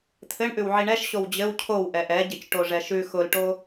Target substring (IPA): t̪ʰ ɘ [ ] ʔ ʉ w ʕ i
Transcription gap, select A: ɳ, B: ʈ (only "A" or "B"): A